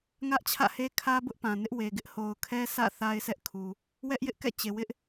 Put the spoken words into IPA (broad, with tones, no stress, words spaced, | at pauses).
ŋä˦ʔt͡ɕʰä̰˦˨he˦ kʰä˦ bʊ˦ʔpã˨nɪ˦ʔ we˨ɡɪ˦ʔ ho˨ʊ̯kʰɛ˦sʰä̰˦˨ θa˦ɪ̯sɛ˦ʔkʰu˨ | wɛ˦ʔjɪ˦ʔkɛ̰˦˨ t͡ɕe˨wɪ˦ʔ